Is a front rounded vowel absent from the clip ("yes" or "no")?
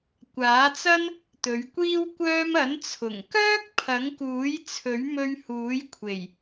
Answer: no